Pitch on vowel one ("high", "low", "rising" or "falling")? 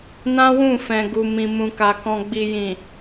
high